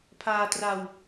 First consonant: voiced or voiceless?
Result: voiceless